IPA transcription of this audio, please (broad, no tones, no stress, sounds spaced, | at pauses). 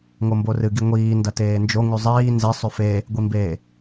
ŋ o m b o r ɨ ɡ i ŋʷ iː n d ɐ t eː n d͡ʒ o ŋ ʉ zˤ iː n z e sˤ ʉ f e | ɡʷ i m b e